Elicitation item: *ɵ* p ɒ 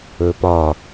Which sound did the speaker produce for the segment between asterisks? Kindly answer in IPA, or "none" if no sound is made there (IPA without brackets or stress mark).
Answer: ɵ